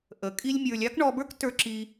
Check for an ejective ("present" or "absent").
present